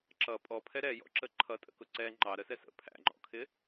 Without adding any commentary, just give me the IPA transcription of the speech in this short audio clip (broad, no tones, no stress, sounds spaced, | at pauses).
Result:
ǁ ʌ pʼ ɔ pʰ ɛ ɾ ɛ j ɔ̰ ǁ ə ǃʰ ʌ tʼ ə̰ k ʊ ǀ ɛ ŋ͡ǃ ɑ ɾ ə s ɛ s ə̰ pʰ æ̰ ŋ͡ǃ ɔ̰ kʰ ɪ